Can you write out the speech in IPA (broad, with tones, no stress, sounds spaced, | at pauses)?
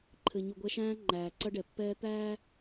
ǃʰ ɘ˨ ɲ u˨ ɡʷ ɛ˦ ʃ æ̃ː˦ ŋ͡ǃ æː˨ ǀ ɐ˦ ɖ ɛ˨ pː ɛː˦ t̪ æː˦